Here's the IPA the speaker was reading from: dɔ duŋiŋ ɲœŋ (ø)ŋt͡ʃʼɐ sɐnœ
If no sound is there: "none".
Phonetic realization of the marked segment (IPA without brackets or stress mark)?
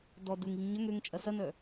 ø